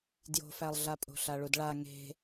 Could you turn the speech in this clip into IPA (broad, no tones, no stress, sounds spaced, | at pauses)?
d j o̤ f æ lˠ ɮ a pʼ o̤ ɬ a ɭ u d ɭ a ŋ e̤